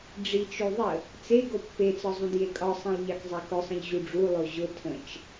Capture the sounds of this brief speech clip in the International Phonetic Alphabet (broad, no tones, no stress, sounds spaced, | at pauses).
ɖ͡ʐ i t͡ʃ o ðˤ ə | t͡s e ɡ o pː e t͡s ɒ zˤ ũ d j e kʼ ɒ sˤ ĩ lˠ ʎ ɑ k zˤ e k ʊ sˤ ə̃ ʎ ʑ u ɖ͡ʐ u lˠ o ʑ ʊ tʰ ə̃ t͡ʃ